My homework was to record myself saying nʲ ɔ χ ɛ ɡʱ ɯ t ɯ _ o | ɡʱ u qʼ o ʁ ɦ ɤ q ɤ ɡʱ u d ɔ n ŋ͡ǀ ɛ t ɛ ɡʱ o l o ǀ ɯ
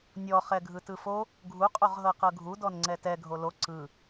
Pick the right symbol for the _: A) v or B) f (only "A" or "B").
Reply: B